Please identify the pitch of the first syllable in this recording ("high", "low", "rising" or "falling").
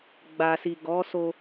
low